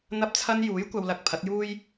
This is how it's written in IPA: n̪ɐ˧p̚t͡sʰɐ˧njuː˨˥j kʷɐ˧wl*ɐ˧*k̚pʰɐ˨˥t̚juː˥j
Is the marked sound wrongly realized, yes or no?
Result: no